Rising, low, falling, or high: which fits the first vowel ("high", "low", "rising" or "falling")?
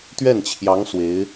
falling